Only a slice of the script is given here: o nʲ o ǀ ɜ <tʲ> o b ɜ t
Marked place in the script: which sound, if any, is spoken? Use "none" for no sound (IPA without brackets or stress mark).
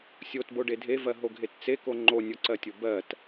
tʲ